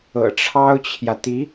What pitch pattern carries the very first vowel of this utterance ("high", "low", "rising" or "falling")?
low